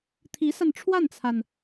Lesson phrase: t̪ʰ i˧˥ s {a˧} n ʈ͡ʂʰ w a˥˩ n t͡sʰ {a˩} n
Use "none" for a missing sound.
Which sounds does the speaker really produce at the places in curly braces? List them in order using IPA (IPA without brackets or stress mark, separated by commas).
a˧, a˩